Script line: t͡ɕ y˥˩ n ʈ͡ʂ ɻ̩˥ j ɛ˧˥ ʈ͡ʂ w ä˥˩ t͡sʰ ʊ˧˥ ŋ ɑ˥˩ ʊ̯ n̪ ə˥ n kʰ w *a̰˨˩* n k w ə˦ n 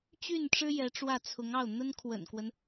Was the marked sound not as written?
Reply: yes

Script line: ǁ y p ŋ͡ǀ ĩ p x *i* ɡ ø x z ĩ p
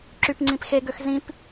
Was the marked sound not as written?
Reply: yes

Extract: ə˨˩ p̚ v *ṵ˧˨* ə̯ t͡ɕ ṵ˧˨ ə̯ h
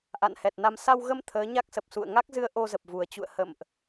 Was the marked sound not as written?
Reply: yes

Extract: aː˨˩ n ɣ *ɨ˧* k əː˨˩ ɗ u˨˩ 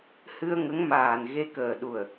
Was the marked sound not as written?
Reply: yes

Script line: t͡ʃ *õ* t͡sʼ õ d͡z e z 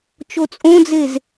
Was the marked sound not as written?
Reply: yes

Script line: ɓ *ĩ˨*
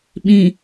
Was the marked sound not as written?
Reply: no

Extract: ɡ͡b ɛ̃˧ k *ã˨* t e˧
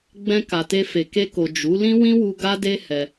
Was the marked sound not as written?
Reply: yes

